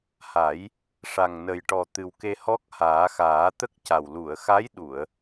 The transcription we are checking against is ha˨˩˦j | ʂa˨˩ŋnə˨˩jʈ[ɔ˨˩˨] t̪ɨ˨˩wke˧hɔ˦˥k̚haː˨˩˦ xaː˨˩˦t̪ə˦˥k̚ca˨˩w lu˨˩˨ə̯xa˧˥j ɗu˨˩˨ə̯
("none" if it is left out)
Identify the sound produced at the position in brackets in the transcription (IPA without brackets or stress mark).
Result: ɔ˨˩